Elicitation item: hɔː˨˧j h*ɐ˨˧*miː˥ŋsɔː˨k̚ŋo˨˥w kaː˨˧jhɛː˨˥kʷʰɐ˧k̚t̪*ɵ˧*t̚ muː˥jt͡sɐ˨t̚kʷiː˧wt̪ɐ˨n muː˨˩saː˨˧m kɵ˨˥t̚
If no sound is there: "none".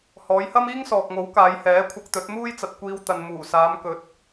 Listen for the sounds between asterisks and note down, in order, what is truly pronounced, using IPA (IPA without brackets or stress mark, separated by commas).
ɐ˥, ɵ˨˥